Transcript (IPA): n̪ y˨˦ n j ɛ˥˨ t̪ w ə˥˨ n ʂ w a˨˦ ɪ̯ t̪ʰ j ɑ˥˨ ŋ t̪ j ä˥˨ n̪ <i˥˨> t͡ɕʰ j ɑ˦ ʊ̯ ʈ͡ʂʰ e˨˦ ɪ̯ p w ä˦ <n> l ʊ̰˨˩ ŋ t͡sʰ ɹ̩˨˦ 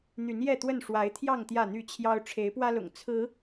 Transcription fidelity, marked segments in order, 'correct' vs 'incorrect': incorrect: y˥˨, incorrect: none

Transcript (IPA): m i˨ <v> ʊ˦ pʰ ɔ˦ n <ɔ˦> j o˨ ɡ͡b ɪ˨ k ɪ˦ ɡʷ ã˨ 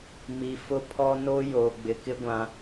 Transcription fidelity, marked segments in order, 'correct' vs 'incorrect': incorrect: f, incorrect: o˦

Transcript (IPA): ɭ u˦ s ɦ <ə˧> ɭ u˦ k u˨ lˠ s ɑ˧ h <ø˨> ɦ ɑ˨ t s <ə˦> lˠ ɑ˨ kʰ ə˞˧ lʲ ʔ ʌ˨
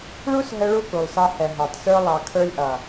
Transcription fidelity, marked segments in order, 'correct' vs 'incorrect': correct, incorrect: ɛ˨, incorrect: ə˞˦

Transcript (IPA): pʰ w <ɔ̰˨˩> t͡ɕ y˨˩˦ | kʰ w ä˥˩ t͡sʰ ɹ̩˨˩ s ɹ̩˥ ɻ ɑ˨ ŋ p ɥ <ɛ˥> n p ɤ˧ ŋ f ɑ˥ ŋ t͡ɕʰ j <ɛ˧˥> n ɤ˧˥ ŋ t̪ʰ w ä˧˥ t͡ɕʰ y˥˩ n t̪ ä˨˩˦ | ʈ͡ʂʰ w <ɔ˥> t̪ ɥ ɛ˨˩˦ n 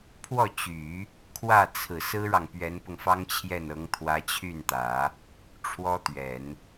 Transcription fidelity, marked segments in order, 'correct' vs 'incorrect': incorrect: ɔ˥˩, incorrect: ɛ˧˥, incorrect: ɛ˥˩, correct

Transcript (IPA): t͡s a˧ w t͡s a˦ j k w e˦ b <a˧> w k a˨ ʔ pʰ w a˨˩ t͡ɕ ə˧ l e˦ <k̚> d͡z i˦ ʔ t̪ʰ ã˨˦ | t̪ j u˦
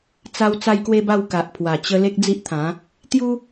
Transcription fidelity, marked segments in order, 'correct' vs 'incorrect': incorrect: a˥˧, correct

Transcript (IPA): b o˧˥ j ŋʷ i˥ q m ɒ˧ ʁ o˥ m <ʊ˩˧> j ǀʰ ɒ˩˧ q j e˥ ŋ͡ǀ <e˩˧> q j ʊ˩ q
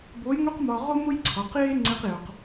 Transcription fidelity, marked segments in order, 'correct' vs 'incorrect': incorrect: ʊ˥, incorrect: e˧

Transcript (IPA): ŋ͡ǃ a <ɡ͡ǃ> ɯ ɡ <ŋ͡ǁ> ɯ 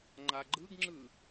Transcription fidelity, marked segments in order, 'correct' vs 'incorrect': correct, correct

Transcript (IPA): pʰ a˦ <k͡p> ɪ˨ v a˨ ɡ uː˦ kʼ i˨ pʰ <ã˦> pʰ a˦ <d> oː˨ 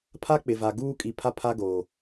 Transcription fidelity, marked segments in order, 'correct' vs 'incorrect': correct, incorrect: a˦, incorrect: ɡ

